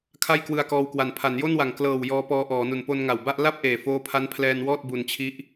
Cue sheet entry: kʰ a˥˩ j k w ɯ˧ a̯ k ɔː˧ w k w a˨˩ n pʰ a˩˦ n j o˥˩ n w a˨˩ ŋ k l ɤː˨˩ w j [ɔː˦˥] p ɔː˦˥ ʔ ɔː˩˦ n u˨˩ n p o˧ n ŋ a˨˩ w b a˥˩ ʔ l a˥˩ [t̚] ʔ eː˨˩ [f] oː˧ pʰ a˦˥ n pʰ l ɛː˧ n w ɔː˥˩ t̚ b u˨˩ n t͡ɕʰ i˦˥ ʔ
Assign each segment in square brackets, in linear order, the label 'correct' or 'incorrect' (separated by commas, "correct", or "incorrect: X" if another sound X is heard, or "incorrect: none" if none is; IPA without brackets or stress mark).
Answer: correct, incorrect: p̚, correct